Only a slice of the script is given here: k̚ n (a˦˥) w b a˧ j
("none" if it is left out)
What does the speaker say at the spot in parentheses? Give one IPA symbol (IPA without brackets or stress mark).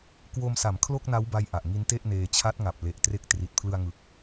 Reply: a˦˥